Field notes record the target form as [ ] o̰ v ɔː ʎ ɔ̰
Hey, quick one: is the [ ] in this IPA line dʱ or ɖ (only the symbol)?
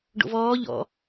ɖ